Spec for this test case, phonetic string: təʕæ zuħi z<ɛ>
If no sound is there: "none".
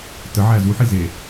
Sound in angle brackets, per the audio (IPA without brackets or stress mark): e